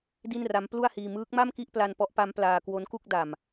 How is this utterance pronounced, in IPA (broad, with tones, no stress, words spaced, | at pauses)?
di˥˩nra˦˥m plu˥˩a̯hiː˧ mɯː˦˥k̚ma˥˩mki˥˩ʔ pla˧npɔ˦˥ʔpa˦˥m plaː˧ kwo˦˥nku˥˩k̚da˨˩m